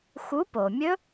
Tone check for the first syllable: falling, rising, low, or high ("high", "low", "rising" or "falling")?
rising